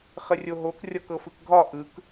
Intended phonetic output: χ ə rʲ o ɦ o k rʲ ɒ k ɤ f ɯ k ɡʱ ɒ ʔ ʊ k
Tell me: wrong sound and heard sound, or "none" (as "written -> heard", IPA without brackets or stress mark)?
ʊ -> ɯ